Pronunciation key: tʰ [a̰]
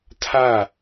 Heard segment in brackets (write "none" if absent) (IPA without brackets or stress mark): a